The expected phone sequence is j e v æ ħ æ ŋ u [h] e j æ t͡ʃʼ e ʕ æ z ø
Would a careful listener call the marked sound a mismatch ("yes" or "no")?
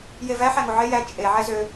yes